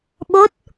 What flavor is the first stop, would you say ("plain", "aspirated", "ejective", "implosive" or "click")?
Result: implosive